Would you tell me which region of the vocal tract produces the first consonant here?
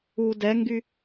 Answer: tongue tip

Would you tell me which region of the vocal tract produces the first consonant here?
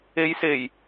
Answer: palate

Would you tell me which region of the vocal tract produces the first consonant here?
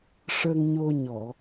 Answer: retroflex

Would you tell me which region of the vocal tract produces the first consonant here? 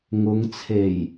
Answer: velum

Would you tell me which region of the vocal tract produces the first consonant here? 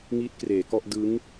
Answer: velum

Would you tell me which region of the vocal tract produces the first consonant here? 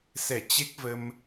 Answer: tongue tip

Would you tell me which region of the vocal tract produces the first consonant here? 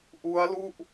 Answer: throat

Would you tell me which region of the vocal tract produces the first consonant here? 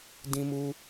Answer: tongue tip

